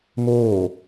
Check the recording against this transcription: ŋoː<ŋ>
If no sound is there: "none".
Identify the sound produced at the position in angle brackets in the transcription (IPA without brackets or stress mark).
none